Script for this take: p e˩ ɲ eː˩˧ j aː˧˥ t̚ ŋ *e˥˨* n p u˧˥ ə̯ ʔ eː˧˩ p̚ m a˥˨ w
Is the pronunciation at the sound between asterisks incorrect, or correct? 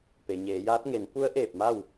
incorrect